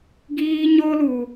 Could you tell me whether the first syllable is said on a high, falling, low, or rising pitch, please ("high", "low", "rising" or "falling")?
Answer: high